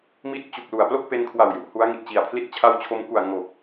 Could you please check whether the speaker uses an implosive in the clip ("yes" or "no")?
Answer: no